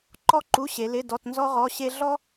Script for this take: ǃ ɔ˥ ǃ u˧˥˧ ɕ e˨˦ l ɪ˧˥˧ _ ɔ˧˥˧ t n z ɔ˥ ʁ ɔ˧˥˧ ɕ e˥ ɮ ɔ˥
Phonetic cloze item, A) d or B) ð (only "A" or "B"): A